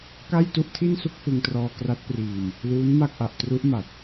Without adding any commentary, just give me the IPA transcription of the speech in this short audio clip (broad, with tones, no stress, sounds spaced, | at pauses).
k a˥˩ j t u˥˩ ʔ tʰ i˥˩ n s u˥˩ k̚ f ɯ˧ ŋ t r ɔː˧ k r a˦˥ t̚ p r iː˧ m | l uː˦˥ n m a˥˩ k̚ ʔ a˨˩ ʔ t r u˦˥ ʔ m a˨˩ t̚